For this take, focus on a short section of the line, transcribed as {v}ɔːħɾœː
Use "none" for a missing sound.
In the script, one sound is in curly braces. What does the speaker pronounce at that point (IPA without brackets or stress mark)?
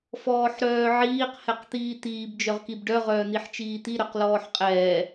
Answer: f